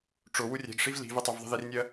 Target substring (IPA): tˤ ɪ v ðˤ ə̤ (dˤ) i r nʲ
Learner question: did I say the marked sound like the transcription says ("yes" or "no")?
no